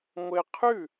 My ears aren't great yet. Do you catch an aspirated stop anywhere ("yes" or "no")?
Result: yes